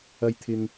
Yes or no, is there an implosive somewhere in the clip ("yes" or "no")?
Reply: no